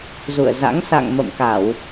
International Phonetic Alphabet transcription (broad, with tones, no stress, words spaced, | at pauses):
zṵ˧˨ə̯za̰˧˥ŋ sa̰˧˨ŋ mə̰˧˨mka˧˩˨w